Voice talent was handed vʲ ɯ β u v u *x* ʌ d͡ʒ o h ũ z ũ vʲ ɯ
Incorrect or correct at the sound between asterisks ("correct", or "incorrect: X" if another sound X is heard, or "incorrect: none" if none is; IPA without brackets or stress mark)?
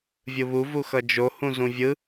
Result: correct